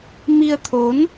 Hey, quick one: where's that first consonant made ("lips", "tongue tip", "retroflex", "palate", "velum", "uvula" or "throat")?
lips